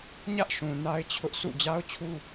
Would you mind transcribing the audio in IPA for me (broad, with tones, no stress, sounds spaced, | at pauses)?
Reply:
ɲ ä˦ ʔ ʃ ũ˨ n a˦ ɪ̯ t͡ɕʰ ʊ˦ ʔ sʰ ṵ˦˨ d͡ʑ a˦ ʊ̯ t͡ɕʰ u˦